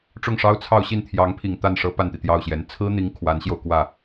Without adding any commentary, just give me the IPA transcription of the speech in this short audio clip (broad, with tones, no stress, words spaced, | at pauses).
ʈ͡ʂʊ˥˩ŋʂɑ˥ʊ̯ t͡sʰɑ˥˧ʊ̯ɕi˥˩n t̪ʰjɑ˧˥ŋpʰi˨˩ŋ t̪a˥˩nʂɤ˥ pa˥˩nt̪i˩t̪jɑ˥˩ʊ̯ɕjɛ˧˥n t͡sʰɹ̩˥n̪i˧˥ŋ kʰwa˧˥nɕjo˧ʊ̯kwä˥˩